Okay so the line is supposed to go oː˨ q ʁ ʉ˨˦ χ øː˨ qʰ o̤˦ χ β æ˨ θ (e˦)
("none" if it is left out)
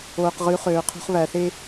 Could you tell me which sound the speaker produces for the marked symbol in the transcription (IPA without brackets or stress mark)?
e˦